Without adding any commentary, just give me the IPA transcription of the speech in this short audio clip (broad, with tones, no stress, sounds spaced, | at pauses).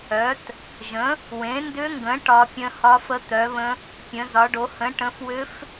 œ˩˥ t | ʒ ə̃˩˥ | w ẽ˩˥ n d ʏ˧˥ ŋ ɡ ə̃˩˥ ʈ ɒ˧˥ pʲ ə̃˧˥ h ɒ˧˥ f ə˧˥ t̪ œ˩˥ β ə̃˧˥ | pʲ ə̃˩˥ z ɒ˩˥ ɖ o˩˥ h ə̃˩˥ ʈ ə̃˩˥ f w ʏ˧˥ f